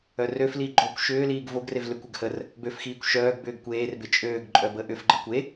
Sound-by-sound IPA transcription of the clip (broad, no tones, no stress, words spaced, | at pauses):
œrøfli ɡ͡ǃokʷ ʃʏːliːɡ voɡrev lʏkʷʏɡ hər | bøfxiːkʷ ʃœːɡbʏːɡ kʷeːrbɪ t͡ʃʼøːɡǃʼœ bəʔʏfɡ͡ǃə kʷe